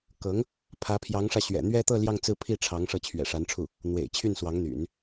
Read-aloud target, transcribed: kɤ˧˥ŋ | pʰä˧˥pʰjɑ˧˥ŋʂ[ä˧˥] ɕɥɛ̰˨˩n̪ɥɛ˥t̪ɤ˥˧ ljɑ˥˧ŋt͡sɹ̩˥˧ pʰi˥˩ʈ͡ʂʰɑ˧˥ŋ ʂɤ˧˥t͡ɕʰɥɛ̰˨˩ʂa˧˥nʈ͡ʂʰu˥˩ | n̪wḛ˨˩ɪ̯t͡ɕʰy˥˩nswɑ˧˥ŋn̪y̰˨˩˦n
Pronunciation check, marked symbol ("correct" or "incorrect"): incorrect